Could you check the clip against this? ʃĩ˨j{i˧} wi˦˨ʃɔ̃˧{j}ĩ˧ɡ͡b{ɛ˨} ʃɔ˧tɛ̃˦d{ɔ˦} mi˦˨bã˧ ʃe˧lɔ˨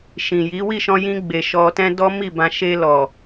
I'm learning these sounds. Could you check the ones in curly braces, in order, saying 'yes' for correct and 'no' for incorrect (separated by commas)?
no, yes, no, yes